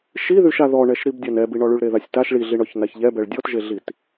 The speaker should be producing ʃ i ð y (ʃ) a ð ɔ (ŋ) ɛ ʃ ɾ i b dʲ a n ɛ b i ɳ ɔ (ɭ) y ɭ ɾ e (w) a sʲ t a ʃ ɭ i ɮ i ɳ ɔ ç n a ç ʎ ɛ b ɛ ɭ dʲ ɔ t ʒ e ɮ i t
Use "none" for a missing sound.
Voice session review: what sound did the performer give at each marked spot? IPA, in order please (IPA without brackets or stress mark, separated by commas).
ʃ, ɳ, ɭ, ð